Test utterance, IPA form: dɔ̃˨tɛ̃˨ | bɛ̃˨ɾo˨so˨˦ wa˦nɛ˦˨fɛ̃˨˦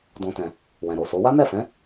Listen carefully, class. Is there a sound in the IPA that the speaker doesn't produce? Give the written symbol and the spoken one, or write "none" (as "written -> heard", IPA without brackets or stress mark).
b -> w